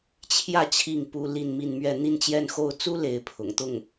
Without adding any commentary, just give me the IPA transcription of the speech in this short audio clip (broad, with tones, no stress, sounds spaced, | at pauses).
t͡ɕʰ j ä˥˧ t͡ɕʰ i˥˩ ŋ p u˥ l i˥˧ n m i˥˧ n m ɥ ɛ˥˧ n̪ i˥˧ n t͡ɕ j ɛ˥˧ n x o˥˩ ʊ̯ t͡s u˥ l e˧˥ ɪ̯ pʰ ʊ̰˨˩ ŋ t̪ ʊ˥˩ ŋ